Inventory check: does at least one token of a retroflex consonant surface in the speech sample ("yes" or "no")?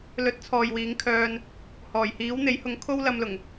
no